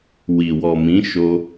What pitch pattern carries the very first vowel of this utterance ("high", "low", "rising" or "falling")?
low